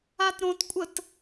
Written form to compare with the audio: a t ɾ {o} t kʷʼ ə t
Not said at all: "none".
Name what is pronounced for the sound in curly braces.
õ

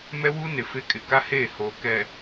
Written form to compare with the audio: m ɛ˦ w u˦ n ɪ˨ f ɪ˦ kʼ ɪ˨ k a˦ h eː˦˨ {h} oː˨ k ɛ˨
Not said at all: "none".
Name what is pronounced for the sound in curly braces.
h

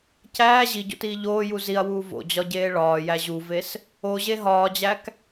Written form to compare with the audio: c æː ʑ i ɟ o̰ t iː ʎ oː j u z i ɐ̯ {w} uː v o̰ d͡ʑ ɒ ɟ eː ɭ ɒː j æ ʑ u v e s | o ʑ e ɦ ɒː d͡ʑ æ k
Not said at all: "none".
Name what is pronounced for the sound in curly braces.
w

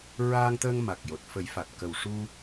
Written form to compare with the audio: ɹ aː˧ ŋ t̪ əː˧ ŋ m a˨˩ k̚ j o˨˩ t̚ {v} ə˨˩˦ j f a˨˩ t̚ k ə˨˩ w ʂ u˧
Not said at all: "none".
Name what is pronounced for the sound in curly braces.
f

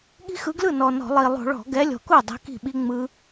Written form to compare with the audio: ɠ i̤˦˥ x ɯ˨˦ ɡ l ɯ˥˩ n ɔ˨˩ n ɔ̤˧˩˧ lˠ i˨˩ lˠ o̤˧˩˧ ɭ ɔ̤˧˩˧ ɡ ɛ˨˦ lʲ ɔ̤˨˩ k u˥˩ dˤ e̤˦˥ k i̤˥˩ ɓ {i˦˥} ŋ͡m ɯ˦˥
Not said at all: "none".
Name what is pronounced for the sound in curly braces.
i˦˥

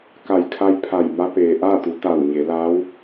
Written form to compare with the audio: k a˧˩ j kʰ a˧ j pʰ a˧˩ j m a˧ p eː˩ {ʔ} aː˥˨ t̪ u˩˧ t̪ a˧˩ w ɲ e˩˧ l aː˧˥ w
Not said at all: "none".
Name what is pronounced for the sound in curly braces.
ʔ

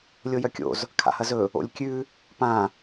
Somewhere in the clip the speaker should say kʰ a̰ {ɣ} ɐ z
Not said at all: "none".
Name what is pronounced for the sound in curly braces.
h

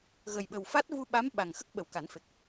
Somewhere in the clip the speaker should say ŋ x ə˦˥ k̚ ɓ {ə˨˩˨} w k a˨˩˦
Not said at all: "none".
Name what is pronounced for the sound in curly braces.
ə˨˩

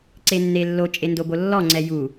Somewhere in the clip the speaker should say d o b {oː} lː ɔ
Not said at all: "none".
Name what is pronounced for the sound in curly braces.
o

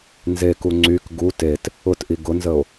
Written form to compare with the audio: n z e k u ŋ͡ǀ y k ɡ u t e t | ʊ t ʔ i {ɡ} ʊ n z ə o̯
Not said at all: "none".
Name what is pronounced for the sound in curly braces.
ɡ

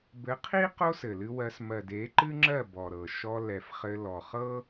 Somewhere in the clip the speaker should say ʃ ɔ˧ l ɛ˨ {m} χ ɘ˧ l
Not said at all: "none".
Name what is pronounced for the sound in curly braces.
f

